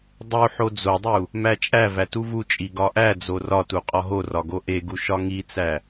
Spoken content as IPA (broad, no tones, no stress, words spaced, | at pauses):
dˤu ħod͡zodˤu | mæt͡ʃʼævæ tuvut͡ʃʼi ɡɒʔæd͡zo rɒtu qʼɒɦorɒ ɡoʔeɡu ʃɒŋit͡sæ